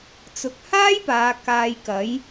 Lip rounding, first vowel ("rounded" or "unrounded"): rounded